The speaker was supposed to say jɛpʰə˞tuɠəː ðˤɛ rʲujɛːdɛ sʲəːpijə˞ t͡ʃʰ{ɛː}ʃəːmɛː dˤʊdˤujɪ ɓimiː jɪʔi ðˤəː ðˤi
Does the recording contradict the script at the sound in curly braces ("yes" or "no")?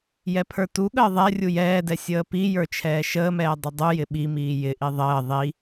no